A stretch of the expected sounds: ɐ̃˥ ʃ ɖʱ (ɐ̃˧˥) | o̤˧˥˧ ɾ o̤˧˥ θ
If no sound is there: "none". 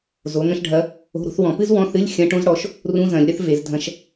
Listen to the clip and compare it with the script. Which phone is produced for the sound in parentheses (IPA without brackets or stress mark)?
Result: ɐ˧˥